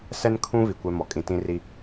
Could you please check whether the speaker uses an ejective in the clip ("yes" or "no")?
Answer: yes